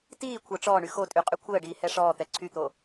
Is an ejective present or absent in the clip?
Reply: present